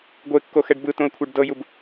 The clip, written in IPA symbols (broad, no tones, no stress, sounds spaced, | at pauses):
ɡʷ e kː o x ɛ ɖ b ɯ t õ ə̯ kʷʰ ɛ ɖ d ɤ j u b